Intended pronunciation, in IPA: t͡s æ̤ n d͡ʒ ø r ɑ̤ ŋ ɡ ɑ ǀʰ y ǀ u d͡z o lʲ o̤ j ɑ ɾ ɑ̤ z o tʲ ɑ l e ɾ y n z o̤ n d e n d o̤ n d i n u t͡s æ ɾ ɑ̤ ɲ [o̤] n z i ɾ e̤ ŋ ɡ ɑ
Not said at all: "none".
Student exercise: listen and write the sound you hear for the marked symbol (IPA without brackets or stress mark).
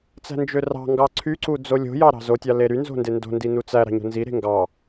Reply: o̤